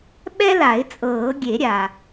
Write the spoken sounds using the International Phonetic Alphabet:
ɓ ɛ˦ l a˨˩˦ ɪ̯ t͡sʼ ɤː˨˩˦ ɡʲ e˨˩˦ ɾʲ a˩

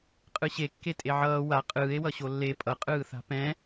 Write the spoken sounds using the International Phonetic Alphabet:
qʼ ɯ ɕ e kː e tʼ e ʕ ʌː w a qʼ ɯː e̯ w ʌ ɕ o lː e pʼ ʌ qʼ ɯː θ a̤ p ɛ̃

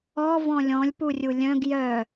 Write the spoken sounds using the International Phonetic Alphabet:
ɔ v ɔ̃ lʲ ɔ̃ lʲ p u rʲ u lʲ œ̃ ɡ j œ

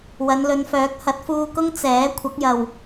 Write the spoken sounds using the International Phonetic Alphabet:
w ɐ˨˧ n l ɵ˨˧ n f œː˨˥ k̚ h ɐ˨˥ t̚ f uː˧ k ʊ˥ ŋ t͡s ɛː˨˥ kʷʰ ɐ˨˥ k̚ j ɐ˨ w

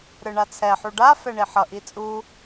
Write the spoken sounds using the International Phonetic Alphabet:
ɾ ɯ ɳ a t͡sʰ ɛ ħ u ɖ a f ɛ ɳ i ħ ʌ ʔ i t͡sʼ u

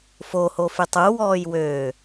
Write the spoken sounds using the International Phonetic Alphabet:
f o h o f y tˤ u w ɔː j w øː

